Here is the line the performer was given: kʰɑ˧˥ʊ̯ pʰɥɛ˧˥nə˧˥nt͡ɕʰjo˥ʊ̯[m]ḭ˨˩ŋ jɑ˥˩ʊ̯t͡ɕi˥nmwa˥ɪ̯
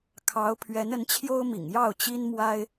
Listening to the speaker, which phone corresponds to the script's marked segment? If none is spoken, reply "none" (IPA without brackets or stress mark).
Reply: m